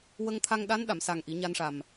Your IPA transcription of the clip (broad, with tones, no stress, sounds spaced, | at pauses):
w ə˧ ŋ t̪ʰ a˧ ŋ ɗ a˧˥ n ɗ a˨˩˨ m s a˨˩ ŋ ʔ i˨˩˦ ɲ a˧ n ʂ a˨˩ m